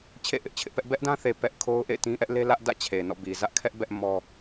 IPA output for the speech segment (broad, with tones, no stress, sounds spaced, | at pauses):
t͡ɕʰ ḛ˦˨ ʔ ɪ˦ ʔ t͡ɕʰ ɪ˦ ʔ p ɛ˦ ʔ b ɛ˦ ʔ d ã˦ θ e˨ p ɛ˦ ʔ kʰ o˦ ʊ̯ ʔ ḛ˦˨ ɪ̯ t ĩ˦ ʔ ɛ˦ ʔ l e˦ l ä˦ ʔ d ä̰˦˨ t͡ɕʰ e˨ n ɔ̰˦˨ b i˨ z ä˦ ʔ kʰ ɛ˦ ʔ b ɛ˦ ʔ m ɔ˦